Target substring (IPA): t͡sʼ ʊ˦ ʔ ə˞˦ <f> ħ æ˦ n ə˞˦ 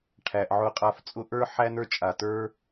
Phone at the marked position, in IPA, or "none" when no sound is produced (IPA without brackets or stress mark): none